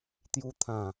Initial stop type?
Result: plain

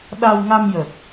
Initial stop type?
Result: implosive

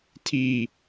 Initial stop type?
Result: aspirated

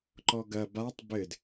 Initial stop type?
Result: click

